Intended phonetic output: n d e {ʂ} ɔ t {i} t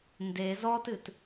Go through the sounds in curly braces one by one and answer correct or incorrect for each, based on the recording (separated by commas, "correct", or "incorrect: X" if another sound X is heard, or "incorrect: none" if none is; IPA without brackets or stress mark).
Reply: incorrect: z, incorrect: ɨ